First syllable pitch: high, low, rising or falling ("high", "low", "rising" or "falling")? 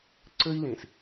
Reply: high